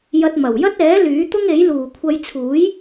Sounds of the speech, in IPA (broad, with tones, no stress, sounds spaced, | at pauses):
j ɐ˧ t̚ m ɐ˨˩ w j ɐ˥ t̚ ɛː˨˥ l yː˨˥ t̪ ʊ˥ ŋ e˨˥ j l uː˨˩ kʷʰ ɐ˧ j t͡sʰ uː˨˥ j